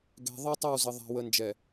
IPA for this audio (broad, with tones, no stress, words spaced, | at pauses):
ɡɛ̤˨ðˤɤ˦ tˤə˦˨wzə˨ ðˤa̤˨ wə˨nd͡ʒɛ˨